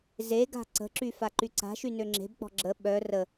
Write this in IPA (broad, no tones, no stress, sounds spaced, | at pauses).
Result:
z e ɡ a̤ ǀ ə̤ ǁ y f a ǃ y ǀ a̤ ʃ y n ø ŋ͡ǁ e̤ b k͡p ɔ̤ ɡ͡ǁ ə ɓ œ r ə